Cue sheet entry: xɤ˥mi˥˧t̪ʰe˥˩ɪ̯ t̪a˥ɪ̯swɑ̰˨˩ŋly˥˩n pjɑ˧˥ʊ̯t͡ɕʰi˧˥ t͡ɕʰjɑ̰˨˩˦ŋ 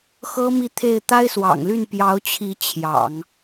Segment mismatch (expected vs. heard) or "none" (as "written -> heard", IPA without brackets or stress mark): none